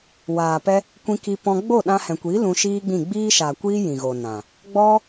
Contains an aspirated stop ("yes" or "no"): no